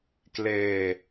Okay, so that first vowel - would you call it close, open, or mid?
mid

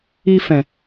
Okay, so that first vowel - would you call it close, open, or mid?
close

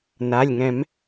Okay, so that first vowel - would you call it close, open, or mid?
open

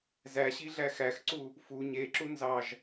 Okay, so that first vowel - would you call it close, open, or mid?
open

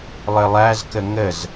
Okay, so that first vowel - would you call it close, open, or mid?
mid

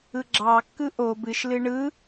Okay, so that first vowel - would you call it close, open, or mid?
close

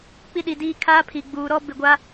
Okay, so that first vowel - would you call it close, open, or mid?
close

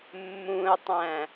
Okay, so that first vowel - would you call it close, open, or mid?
close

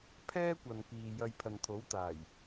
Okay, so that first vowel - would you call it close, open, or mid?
mid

